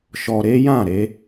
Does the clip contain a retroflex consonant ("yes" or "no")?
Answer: no